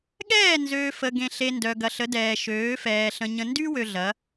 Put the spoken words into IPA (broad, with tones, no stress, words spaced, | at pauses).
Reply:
ɠɛː˦˨nzøː˨ fə˨ɡẽ˨ɬe˨ ndœ˨ɡɐ˨ɬə˨˦dɛː˨ ʃøː˨˦fɛː˨ ɬə̃˨ ɲə̃˨ndy˦wø˨ ɮɐ˨˦